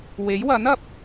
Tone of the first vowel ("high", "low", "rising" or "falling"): rising